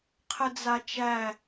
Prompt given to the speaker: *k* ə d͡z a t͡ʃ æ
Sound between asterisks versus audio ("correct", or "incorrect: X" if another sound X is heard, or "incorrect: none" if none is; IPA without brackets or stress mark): incorrect: qʰ